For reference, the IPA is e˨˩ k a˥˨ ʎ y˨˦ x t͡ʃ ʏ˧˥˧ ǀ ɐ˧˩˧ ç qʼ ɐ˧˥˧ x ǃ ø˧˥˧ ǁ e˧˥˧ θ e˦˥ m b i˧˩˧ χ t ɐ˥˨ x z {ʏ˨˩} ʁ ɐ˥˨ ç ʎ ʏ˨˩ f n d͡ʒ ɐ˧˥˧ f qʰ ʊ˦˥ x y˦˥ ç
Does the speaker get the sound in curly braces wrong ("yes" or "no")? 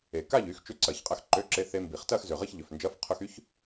no